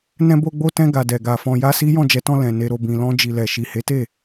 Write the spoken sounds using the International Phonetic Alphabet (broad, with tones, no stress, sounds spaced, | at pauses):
n ɛ̃˧ b o˧ ɡ͡b o˧ t ɛ̃˧ ɡ a˨ d ɛ˨ ɡ a˨ f ɔ̃˧ j a˦ s i˦ j ɔ̃˦˨ d͡ʒ ɛ˨˦ t ɔ̃˧ l ɛ̃˨ n e˧ ɾ o˧ b ĩ˨ l ɔ̃˧ d͡ʒ i˨ l ɛ˨ ʃ i˨ h e˨˦ t e˦˨